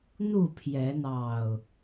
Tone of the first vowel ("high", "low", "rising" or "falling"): falling